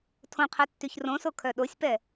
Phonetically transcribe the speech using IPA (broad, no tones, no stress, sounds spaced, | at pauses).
tʰ õ qʰ ɛ tː y ç r õ s o kʰ œ ɗ o sʲ p ɛ